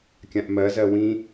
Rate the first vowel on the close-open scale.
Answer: open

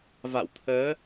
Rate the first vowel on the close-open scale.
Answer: open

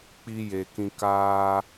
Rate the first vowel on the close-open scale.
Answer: close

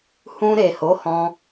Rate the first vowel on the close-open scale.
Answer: close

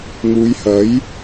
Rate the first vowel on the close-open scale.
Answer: close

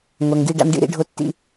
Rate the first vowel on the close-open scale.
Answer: open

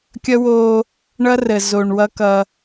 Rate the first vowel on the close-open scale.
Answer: mid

